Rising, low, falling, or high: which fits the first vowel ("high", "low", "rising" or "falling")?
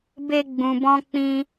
high